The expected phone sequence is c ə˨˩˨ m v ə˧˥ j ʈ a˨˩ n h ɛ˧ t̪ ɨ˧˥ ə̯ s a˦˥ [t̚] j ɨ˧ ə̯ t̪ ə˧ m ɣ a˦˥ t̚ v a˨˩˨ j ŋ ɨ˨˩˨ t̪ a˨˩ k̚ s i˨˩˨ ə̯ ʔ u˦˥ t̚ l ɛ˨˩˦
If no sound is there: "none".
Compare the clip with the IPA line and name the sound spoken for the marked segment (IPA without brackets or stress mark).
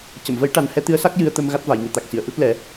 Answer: k̚